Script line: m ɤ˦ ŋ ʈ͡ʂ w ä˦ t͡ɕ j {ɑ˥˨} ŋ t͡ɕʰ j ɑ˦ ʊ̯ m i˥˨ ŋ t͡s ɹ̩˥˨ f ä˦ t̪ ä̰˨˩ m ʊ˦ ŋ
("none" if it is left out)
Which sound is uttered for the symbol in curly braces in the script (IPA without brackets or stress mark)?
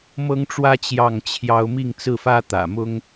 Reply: ɑ˥˨